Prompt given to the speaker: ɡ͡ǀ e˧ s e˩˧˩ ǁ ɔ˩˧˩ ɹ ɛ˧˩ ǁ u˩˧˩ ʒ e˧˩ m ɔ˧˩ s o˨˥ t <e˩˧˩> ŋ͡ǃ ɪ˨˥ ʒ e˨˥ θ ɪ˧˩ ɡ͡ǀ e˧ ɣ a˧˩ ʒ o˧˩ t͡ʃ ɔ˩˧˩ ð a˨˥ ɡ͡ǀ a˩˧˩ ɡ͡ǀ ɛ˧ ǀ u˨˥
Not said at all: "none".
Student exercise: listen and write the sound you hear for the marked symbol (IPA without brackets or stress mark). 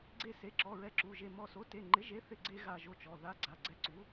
e˩˧˩